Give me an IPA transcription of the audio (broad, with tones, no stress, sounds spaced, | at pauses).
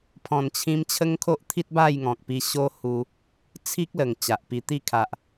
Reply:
pʰ ɔ̃˨˩ n t͡ɕʰ ĩ˧ m t͡ɕʰ ə˦ ŋ kʰ o˦ ʔ t̪ʰ i˦ t̚ b a˥˧ j ŋ ɔ̃˨ k̚ p i˧ ɕ o˦ h u˧ | t͡sʰ i˦ k̚ l ə˨˩ ŋ t͡ɕ a˨ ʔ p i˧ t̪ i˦ kʰ a˨ ʔ